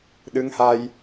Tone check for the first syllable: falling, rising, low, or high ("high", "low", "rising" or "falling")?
rising